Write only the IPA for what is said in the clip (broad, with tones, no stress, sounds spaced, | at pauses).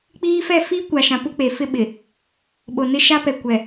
k͡p iː˦ f ɛ˦˨ f i˦ kʷ a˨ ʃ ã˨ p u˦ k͡p e˨ f ɪ˦ ɓ ɪ˨ | ɓ o˨ n ɪ˦ ʃ a˦ p ɛ˨ kʷ ɛ˨